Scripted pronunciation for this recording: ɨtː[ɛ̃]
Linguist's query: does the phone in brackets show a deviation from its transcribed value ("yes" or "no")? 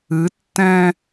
no